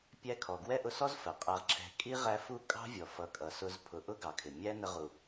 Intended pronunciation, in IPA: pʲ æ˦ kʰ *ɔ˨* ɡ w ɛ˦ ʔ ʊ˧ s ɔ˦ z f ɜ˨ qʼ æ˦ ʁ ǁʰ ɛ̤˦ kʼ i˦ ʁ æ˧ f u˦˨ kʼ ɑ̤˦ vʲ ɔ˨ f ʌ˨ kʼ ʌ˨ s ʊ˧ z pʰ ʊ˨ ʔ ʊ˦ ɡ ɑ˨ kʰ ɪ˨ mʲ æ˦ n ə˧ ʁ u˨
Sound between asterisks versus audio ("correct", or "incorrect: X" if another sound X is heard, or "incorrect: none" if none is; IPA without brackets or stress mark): correct